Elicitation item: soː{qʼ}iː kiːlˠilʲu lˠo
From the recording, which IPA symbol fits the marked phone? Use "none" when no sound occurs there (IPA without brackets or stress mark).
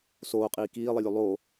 qʼ